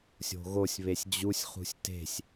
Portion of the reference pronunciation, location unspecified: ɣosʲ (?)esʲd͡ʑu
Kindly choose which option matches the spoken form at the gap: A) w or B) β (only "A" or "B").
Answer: B